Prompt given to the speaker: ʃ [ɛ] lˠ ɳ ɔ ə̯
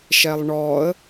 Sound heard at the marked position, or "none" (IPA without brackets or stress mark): ɛ